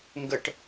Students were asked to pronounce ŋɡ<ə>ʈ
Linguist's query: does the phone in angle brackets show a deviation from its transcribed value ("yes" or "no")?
no